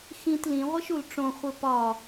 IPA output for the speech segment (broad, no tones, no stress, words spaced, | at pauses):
xĩt lĩʁʷeʃul ʈ͡ʂõχʷe pɒ